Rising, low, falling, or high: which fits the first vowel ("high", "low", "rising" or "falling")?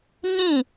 falling